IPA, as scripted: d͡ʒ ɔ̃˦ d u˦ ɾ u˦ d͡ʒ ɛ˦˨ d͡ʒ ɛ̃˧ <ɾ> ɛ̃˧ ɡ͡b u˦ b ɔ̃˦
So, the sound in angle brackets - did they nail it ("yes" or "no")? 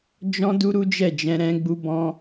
yes